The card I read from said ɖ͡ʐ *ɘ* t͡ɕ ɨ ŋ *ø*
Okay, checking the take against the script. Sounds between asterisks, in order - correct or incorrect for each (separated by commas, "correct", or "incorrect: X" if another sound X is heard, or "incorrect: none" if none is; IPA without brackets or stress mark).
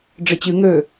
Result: correct, correct